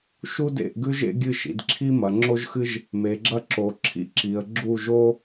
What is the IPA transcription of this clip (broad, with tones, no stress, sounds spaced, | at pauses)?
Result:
ʃ u˥ d ḛ˥˩ ʔ ɡ ʉ˥ ʒ ḛ˥ ɡʲ ɨ˥˩ ʃ ḭ˩˧ d ǁʰ i˥ m ɐ˩˧ ŋ͡ǁ o˥ ʒ x ɨ˥ ʒ | m e˩˧ ɡ͡ǁ ɐ˥ ǁ o˩˧ ǁʰ ḭ˥ ǁ i˩˧ ə̯ ɡ͡ǁ u˥˩ ʒ o˥